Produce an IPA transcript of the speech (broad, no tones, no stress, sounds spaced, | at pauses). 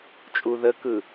t͡ʃʼ u ð ə k ɯ